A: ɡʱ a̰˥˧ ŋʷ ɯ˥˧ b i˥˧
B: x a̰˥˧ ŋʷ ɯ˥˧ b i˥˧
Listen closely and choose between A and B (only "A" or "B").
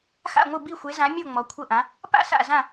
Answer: B